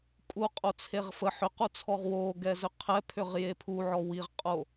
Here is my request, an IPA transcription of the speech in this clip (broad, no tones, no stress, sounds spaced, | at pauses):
kʼ u qʼ o t͡sʰ e ʁ f ə ħ ʏ q u t͡sʰ ɔ ʁ w o ɡ ɛ z ʏ qʰ ɛ pʰ ʏ ʁ j e pʰ u ʕ ɔ w i ʁ qʼ o